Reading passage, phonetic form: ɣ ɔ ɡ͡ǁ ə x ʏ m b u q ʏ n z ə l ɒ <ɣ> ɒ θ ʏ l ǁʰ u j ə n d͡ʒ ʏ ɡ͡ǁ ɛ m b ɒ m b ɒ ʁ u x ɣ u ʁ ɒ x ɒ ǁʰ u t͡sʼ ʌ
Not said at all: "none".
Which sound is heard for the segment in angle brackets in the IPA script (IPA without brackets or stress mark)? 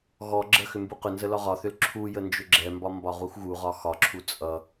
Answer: ʁ